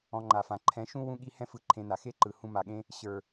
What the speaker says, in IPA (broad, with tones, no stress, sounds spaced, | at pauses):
ɔ̃˧ ŋ͡ǃ a˨ f ã˨ ǃʰ ɛ̃˨˦ ʃ ũ˦ w ũ˦ ɠ i˦ h ɛ̃˦ f ɯ˧ ǃʰ ẽ˧ n a˨ x e˦ ǃ ɯ˨ h ũ˧ m a˨ ɠ ẽ˦ | ɕ ə˞˨